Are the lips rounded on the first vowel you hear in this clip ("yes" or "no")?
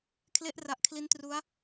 no